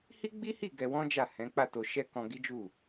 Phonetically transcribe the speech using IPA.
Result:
h i˦ ɡ͡b i˦ h i˦˨ ɡ ɛ˧ w ɔ̃˦ d͡ʒ a˦˨ h ɛ̃˨˦ k͡p a˦˨ t o˧ ʃ ɛ˦ k ɔ̃˧ ɡ i˦ d͡ʒ u˦˨

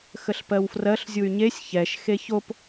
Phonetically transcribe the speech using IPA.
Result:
x ə ɬ p ɜ w f r ɜ ɬ zʲ u y̯ ɲ e sʲ ç ɛ ʃ x e ç o p

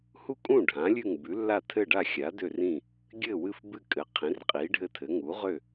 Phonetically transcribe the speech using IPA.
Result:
h u˥˩ kʼ ũ˥˩ ɖʱ ã˩˥ lʲ ʉ˥˩ ŋ b ʉ˩˥ lː a˥˩ tʰ ɘ˥˩ ɖ a˥˩ xʲ a˩˥ d ø˥˩ r ĩ˥˩ | ɡʲ ɘ˥˩ w ɨ˥˩ f b ɨ˥˩ kʼ ɘ˩˥ qʰ ĩ˩˥ r qʼ i˩˥ ɖʱ ɘ˥˩ tʰ ɘ˩˥ ŋ u˩˥ ʁ ø˥˩

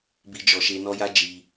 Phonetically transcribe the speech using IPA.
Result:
b i˦ d͡ʒ ɔ˧ ʃ e˦ n ɔ˦ j a˦ d͡ʒ i˧

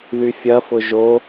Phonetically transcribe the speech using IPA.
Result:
ð y fʲ ɐ f ʊ ʒ o

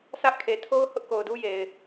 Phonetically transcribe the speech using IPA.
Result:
sʰ ä˦ ʔ kʰ e˨ tʰ o˦ ʊ̯ h ʊ˦ ʔ k o˨ ʊ̯ d u˦ j e˨ ɪ̯

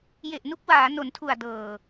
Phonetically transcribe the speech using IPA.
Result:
j e˨˩ ʔ n u˦˥ k̚ w aː˩˦ n o˩˦ n tʰ u˨˩ a̯ d ɤː˨˩

